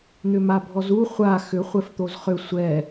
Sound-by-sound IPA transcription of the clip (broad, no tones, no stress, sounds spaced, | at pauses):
n̪ ʏ m a bʱ ɔ z u χʷ a x ʏ χʷ ɛ f t̪ o z χ ʏ sʷ ɛ